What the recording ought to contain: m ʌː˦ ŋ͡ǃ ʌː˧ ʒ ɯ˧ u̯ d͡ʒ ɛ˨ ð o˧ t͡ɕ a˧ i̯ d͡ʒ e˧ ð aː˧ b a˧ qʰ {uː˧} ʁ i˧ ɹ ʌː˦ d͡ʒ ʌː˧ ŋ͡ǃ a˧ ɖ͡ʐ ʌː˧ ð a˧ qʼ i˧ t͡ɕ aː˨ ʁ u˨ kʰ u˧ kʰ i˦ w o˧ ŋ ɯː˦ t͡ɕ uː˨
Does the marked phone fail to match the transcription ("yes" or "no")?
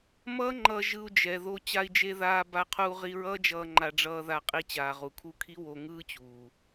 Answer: no